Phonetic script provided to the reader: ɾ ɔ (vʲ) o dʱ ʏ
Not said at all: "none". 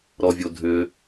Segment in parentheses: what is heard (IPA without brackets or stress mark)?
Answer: vʲ